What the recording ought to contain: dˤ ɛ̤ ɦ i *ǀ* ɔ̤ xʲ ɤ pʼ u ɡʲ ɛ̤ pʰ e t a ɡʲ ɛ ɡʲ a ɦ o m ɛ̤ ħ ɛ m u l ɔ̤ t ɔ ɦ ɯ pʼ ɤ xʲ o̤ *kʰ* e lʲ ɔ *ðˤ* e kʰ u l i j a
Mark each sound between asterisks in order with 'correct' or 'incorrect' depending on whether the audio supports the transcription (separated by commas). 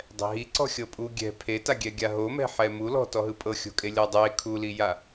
correct, incorrect, incorrect